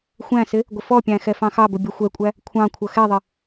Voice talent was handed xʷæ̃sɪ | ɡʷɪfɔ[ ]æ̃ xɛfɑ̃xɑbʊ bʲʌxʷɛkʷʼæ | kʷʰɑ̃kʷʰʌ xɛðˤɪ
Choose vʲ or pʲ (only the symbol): pʲ